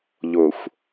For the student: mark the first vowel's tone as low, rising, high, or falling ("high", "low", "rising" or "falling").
low